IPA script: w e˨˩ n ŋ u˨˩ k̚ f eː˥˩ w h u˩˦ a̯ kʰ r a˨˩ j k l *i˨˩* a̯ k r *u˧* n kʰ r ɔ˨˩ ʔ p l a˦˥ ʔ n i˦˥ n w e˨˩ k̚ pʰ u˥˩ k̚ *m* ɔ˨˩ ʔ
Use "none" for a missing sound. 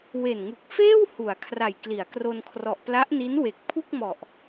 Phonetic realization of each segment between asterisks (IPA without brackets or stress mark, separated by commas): i˩˦, o˧, m